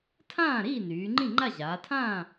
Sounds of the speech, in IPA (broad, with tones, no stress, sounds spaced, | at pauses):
tʰ ãː˥˨ ɾ iː˥˨ n yː˩˧ ŋ͡ǃ ĩ˥˨ ŋ͡ǃ a˥˨ ʑ aː˩˧ tʰ ãː˥˨